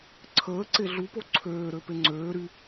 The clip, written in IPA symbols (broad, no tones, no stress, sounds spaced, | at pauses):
ǀʰ əː ǀ e ɮ u p o ǀʰ øː ɾ ø p e ŋ͡ǀ øː ɾ y